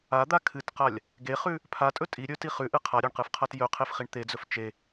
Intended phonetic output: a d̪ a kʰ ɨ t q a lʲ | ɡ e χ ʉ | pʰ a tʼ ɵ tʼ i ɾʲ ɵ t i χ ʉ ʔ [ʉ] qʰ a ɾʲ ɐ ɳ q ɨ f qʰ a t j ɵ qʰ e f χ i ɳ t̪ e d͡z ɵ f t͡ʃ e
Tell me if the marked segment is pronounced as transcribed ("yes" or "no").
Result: no